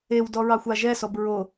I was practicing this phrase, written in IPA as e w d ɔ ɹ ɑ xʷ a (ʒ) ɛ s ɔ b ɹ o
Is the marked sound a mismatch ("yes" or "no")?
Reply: no